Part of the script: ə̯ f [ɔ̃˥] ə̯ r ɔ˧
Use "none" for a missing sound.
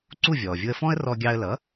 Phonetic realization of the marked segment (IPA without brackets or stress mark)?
ɔ̃˥